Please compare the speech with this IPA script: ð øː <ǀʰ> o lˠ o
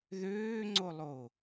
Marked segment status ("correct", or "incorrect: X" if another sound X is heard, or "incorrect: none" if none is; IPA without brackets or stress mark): incorrect: ŋ͡ǀ